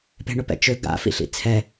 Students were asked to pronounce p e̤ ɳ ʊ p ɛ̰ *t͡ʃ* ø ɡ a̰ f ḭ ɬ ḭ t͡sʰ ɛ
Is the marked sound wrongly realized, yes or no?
no